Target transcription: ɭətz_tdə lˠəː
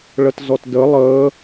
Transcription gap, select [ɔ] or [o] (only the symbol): ɔ